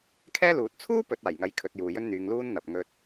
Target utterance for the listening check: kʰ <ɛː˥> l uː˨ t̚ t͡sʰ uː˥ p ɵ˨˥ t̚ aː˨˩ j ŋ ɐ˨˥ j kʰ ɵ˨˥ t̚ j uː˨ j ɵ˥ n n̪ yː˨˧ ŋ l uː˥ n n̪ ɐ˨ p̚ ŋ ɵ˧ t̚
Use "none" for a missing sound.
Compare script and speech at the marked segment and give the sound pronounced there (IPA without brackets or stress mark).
ɛː˥